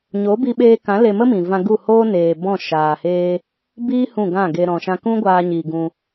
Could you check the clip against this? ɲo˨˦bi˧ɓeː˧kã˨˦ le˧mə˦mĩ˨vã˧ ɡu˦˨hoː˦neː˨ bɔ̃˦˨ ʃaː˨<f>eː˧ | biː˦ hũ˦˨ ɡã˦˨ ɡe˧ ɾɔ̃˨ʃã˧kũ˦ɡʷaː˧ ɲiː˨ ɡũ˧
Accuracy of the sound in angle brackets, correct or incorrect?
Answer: incorrect